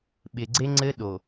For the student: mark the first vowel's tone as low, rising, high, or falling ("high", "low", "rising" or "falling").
low